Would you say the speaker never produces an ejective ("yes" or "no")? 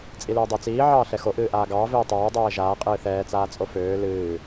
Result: no